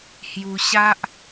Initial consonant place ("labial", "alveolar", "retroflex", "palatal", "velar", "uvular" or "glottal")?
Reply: glottal